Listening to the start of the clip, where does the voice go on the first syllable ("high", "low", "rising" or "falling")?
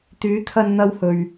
rising